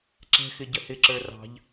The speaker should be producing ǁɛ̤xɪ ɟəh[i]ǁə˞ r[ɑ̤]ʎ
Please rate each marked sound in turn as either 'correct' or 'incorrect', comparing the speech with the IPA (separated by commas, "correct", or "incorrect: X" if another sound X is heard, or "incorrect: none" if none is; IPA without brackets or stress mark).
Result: incorrect: ɪ, correct